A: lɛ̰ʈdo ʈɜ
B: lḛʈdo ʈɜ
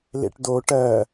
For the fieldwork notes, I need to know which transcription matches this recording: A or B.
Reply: B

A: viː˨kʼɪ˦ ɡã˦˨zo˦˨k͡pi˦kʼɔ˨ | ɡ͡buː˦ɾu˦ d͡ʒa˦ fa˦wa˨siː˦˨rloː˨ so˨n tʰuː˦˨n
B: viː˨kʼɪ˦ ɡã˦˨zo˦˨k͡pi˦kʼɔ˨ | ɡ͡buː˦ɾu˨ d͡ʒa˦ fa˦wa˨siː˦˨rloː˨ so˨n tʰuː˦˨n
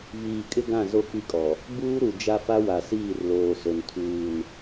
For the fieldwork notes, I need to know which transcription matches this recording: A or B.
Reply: B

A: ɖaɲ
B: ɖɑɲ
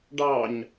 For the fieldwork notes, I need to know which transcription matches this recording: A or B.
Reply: B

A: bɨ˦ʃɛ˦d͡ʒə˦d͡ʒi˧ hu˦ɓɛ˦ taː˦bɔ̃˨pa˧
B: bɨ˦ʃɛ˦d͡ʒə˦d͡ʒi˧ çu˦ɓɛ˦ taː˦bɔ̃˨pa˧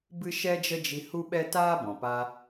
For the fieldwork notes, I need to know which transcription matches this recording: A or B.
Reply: A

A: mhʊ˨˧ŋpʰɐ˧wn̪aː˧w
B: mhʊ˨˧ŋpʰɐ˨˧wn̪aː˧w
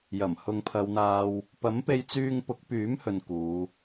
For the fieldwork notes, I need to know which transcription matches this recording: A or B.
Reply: B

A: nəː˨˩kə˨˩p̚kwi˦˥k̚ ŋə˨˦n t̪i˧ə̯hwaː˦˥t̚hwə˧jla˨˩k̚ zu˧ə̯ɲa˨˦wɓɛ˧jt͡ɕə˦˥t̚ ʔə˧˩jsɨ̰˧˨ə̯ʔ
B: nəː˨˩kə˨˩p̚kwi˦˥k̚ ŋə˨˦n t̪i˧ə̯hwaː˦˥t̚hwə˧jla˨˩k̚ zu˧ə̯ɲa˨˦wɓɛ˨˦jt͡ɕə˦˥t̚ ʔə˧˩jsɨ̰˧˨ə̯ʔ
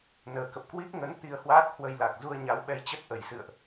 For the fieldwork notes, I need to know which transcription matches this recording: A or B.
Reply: A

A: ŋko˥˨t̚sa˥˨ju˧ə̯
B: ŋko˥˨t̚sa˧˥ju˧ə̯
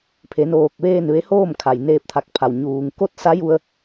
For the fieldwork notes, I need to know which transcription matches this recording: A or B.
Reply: B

